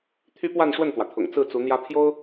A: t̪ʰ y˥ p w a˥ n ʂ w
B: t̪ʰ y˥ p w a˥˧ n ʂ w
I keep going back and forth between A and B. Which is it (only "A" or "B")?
B